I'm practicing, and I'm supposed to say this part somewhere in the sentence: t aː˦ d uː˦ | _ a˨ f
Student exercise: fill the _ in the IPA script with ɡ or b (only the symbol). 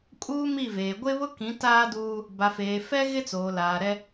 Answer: b